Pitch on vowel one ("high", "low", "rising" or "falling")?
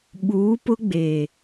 rising